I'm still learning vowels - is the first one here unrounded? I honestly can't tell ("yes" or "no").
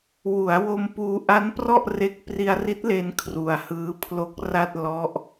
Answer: no